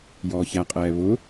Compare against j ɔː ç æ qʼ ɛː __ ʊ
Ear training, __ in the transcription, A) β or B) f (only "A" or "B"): A